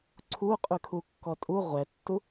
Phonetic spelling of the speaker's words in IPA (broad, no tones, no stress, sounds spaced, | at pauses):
ǀʰ u qʼ y kʰ u kː ɔ tʼ u ʁʷ ɛ tː u